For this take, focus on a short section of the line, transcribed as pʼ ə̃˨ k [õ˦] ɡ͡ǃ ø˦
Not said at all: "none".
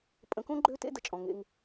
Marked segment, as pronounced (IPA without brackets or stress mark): õ˦